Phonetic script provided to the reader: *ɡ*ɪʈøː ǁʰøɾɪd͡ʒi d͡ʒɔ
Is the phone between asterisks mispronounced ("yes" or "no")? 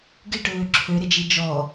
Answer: no